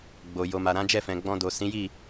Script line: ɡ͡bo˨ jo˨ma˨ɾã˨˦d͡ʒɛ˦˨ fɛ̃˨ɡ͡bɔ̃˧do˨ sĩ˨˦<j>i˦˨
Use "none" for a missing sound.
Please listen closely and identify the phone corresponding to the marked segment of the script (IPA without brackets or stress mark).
j